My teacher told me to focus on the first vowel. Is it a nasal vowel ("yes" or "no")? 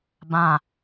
yes